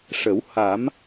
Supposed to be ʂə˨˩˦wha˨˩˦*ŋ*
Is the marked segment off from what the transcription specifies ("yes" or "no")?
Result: yes